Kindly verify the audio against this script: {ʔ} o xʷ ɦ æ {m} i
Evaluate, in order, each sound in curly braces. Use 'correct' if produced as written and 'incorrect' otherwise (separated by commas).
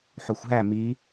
incorrect, correct